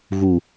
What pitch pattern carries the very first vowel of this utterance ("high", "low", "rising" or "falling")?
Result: low